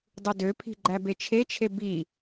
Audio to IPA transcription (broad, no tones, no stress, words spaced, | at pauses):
dˤudøpʰi̤ ɡ͡ǃæbet͡ʃʰet͡ʃʰe bi